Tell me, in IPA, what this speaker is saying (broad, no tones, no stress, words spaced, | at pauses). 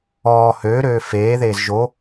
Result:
ɔː høːɾøː feː ðeːzʒo